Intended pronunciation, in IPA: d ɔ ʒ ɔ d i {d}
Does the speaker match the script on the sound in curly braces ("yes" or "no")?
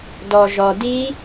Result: no